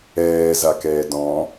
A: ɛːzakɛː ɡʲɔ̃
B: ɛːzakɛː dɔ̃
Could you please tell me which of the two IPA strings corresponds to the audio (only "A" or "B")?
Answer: B